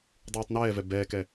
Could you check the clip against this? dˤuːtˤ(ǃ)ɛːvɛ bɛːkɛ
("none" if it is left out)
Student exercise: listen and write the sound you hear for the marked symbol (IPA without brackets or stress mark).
n